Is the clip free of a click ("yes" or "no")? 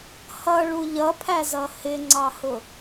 no